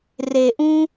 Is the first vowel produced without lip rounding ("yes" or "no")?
yes